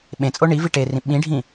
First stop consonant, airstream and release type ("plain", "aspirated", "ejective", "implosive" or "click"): implosive